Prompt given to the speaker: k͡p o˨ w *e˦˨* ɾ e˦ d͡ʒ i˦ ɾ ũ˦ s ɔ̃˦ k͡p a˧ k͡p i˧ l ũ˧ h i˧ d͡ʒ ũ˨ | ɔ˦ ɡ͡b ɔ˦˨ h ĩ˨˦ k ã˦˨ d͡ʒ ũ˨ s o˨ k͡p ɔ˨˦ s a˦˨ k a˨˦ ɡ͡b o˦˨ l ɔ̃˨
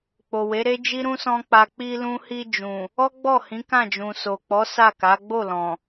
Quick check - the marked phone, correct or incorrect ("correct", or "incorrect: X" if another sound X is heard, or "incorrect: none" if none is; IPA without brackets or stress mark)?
incorrect: e˨˦